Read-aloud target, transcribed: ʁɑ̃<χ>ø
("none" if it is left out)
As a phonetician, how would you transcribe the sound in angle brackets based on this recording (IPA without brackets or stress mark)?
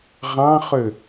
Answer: χ